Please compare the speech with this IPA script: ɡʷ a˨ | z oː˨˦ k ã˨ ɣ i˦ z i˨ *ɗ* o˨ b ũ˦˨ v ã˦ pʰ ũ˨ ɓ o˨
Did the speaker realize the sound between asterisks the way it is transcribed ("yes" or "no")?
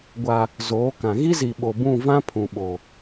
no